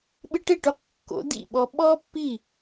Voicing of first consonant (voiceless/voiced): voiced